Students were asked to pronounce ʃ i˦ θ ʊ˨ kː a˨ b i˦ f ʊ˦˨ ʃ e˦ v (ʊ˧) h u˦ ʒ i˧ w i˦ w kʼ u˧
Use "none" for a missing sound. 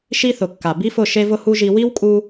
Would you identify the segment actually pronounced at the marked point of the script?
ʊ˦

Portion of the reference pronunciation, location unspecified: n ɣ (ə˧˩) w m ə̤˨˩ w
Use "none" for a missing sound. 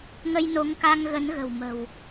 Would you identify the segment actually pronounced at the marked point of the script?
ə̤˨˩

